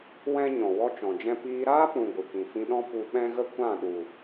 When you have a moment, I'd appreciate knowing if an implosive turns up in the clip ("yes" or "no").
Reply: yes